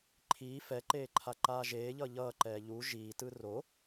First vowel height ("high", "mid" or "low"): high